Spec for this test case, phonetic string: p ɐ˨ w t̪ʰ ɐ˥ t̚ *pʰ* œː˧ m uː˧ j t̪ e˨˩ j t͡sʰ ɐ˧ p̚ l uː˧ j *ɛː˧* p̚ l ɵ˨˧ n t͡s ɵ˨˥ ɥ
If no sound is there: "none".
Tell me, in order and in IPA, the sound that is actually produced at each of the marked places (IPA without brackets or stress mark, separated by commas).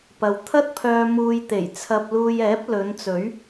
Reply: pʰ, ɛː˨˥